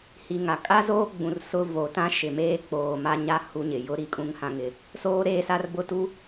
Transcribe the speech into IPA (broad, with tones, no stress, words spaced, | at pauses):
hi˨ŋa˨ kʼa˦zoː˦ɡ͡bũ˨r sʊ˦ voː˨tã˦ ʃɪ˨meː˦ k͡poː˨ma˦ɲa˦ hu˦ɲɪ˨ jʊ˦ ɾi˨kʼũ˦ŋ hã˦ŋɪ˦ | soː˦ɾeː˦ sa˦rbʊ˦tu˦